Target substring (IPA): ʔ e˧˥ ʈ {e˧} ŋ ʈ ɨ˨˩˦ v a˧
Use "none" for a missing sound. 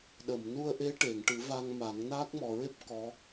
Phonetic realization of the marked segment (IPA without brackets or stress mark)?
e˨˩˨